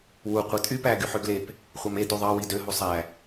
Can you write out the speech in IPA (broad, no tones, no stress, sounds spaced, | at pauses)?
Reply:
w u qʷ i tʼ y p æ ɡ y ħ ø ɡ l e p | χʷ ɑ m e d u ðˤ ɑ w i d ø ɦ u sˤ æ